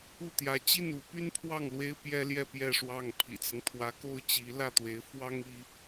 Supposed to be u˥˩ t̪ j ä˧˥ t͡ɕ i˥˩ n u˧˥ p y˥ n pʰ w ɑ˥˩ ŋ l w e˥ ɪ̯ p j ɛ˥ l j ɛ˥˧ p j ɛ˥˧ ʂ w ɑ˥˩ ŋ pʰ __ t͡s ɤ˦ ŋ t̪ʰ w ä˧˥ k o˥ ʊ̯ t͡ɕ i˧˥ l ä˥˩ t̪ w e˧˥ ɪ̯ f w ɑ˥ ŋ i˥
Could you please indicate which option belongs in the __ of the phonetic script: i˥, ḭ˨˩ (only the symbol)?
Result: ḭ˨˩